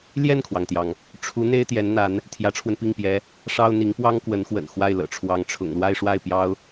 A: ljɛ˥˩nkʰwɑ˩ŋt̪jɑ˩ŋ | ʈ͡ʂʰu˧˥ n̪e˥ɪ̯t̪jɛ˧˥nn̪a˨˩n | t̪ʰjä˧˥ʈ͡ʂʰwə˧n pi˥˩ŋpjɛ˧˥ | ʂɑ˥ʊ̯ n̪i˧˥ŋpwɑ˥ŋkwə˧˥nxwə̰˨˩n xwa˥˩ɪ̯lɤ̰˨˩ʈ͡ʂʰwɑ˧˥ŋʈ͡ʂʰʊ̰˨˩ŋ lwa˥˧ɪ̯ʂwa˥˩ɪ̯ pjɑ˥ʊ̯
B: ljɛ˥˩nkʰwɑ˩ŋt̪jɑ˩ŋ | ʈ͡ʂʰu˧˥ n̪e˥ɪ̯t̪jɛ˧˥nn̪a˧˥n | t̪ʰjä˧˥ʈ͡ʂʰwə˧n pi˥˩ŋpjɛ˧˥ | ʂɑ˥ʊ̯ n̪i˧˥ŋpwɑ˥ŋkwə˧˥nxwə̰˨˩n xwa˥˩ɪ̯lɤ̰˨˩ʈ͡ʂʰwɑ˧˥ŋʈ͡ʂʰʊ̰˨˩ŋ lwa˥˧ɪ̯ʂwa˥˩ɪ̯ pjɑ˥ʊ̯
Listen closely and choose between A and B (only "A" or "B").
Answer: B